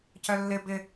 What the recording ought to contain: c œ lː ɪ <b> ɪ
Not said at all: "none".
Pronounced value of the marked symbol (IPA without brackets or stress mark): b